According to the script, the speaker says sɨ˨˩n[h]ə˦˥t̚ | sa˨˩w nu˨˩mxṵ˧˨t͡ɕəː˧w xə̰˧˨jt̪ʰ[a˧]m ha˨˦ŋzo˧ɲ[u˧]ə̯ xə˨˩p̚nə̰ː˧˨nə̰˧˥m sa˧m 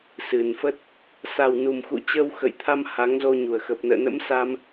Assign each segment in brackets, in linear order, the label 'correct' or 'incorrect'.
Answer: incorrect, correct, incorrect

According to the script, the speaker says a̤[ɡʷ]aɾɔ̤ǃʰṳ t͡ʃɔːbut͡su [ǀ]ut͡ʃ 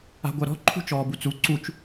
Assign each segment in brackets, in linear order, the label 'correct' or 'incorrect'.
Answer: correct, correct

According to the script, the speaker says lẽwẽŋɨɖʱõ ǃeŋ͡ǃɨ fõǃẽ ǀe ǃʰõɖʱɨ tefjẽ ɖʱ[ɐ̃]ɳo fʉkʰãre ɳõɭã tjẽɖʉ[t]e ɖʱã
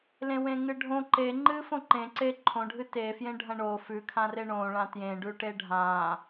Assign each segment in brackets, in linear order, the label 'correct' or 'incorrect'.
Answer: correct, incorrect

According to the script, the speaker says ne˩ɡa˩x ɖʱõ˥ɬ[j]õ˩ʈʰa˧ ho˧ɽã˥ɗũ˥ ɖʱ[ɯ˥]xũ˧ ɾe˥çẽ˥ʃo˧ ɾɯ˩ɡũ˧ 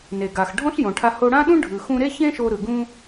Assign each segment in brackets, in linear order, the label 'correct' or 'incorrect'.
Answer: correct, incorrect

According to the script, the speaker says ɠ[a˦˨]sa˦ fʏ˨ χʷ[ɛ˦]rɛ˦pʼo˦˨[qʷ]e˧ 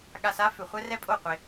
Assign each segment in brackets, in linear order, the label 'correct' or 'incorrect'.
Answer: incorrect, correct, correct

